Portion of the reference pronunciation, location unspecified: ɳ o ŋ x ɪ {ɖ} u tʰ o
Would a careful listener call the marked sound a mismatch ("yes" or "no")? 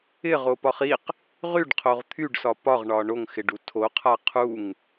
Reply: no